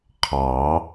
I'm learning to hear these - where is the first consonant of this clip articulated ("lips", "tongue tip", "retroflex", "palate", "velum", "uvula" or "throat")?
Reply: uvula